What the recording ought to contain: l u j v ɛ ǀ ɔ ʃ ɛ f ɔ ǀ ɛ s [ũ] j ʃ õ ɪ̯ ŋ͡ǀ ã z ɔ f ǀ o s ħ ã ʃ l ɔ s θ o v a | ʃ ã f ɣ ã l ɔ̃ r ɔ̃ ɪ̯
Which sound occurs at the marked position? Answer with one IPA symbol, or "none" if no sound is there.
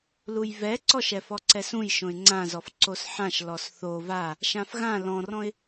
ũ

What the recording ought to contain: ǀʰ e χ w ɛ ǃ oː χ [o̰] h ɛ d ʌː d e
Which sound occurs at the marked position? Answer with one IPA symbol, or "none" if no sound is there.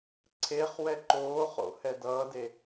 o̰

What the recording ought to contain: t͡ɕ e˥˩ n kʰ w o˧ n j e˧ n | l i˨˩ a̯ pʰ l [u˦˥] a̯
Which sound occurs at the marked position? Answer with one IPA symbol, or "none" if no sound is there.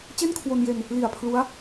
u˦˥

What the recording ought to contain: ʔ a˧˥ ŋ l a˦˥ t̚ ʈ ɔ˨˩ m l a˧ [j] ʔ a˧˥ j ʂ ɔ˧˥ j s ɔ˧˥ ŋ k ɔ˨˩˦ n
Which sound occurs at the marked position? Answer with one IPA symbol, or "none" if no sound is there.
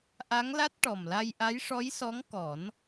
j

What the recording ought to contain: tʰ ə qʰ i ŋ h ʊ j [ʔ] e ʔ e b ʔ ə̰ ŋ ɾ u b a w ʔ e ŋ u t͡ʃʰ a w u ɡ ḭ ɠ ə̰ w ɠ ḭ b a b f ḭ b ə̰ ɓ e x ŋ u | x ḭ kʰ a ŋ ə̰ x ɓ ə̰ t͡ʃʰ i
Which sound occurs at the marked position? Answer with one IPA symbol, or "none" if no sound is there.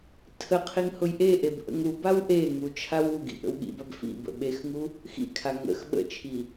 ʔ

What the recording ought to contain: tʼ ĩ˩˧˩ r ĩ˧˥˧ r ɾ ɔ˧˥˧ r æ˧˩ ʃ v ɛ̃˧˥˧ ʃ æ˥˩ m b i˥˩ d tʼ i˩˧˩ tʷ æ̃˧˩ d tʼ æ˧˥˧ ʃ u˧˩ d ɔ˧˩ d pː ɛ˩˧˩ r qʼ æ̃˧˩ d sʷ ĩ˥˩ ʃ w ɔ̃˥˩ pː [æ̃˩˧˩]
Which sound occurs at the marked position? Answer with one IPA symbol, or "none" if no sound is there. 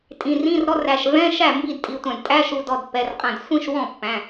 æ̃˩˧˩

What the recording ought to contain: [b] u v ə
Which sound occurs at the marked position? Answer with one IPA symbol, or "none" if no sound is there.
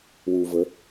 w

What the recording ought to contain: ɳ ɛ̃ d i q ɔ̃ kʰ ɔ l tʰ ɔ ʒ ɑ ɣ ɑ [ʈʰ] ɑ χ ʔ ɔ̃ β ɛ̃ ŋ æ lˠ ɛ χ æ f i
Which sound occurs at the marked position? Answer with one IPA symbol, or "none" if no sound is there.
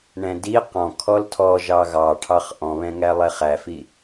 ʈʰ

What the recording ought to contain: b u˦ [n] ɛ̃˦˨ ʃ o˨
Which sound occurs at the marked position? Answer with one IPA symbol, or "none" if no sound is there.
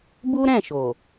ɾ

